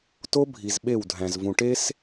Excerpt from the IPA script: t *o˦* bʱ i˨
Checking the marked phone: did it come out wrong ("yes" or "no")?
no